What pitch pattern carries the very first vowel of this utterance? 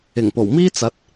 low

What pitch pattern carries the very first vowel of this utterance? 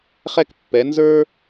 high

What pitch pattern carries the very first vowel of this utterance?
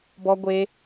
high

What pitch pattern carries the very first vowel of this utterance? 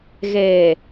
low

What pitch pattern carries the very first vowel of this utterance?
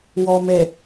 low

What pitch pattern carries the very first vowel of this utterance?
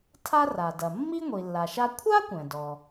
high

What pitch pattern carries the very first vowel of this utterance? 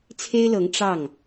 high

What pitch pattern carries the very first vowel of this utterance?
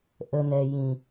low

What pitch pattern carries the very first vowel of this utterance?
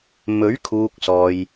rising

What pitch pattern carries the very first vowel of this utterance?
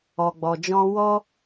low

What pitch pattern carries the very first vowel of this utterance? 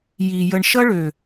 low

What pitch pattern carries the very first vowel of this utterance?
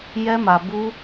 high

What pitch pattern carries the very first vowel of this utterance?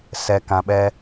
low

